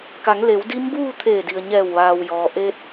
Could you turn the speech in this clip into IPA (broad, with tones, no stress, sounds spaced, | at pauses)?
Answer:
k a˩˧ ŋ l e˩˧ w d i˧˥ m b uː˥˨ t̪ʰ eː˧˩ d i˩ ə̯ ɲ ɛː˧˩ w ʋ aː˩ w j ɔː˩ ʔ eː˧ t̚